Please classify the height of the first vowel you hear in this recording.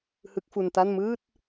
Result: high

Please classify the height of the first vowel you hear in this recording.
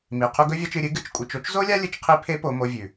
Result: high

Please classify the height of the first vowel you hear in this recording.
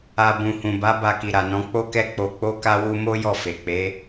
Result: low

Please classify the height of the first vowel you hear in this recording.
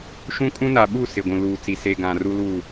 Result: high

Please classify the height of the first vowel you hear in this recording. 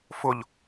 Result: high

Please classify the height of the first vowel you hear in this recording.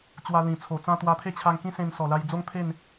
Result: low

